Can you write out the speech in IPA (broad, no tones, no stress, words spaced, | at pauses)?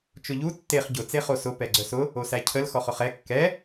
t͡ʃʊʎu tːeχ ɟʊ t͡seχosʊ pɛɡ͡ǀœsʊ | osæcʰəl xɔχʊχɛ kːɛ